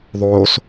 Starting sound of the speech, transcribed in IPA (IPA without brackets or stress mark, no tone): ðˤ